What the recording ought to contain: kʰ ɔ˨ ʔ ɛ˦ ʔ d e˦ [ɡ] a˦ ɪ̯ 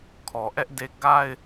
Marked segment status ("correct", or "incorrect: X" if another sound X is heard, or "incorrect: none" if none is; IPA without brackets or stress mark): correct